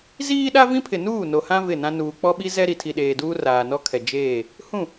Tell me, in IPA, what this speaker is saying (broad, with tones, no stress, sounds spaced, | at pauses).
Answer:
z iː˦ ɗ a˦ v ĩ˦ pʰ ɪ˨ n uː˦˨ n o˨ h ã˦ v ɪ˦˨ n ã˦ n uː˨ k͡p ɔ˦ ɓ i˦ z ɛ˦ ɾ i˨ tʰ i˨ ɗ eː˨ d uː˦ r aː˨ n ɔ˦ kʰ ɛ˨ d͡ʒ eː˦˨ | h ũ˦˨